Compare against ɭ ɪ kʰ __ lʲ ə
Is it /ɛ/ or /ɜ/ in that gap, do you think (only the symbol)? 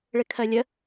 ɜ